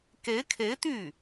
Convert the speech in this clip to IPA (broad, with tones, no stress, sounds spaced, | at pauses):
k e˧˥ ɪ̯ kʰ e˧˥ ɪ̯ t̪ y˥˩